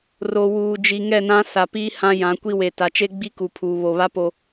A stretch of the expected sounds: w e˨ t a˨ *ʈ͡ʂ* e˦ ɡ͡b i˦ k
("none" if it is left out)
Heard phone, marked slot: t͡ʃ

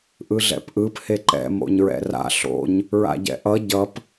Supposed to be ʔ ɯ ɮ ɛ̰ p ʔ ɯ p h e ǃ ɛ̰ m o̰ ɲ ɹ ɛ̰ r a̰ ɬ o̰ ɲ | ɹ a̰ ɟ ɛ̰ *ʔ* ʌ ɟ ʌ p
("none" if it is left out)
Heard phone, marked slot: ʔ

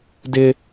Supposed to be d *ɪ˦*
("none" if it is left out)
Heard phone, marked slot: ɪ˦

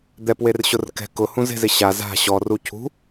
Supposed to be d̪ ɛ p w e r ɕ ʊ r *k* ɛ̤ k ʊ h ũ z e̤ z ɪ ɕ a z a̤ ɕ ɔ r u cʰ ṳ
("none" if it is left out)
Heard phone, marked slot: k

